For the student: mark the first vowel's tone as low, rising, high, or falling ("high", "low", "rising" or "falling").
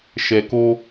low